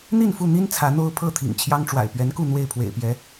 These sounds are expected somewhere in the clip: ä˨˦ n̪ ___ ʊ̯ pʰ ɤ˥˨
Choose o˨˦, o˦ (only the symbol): o˦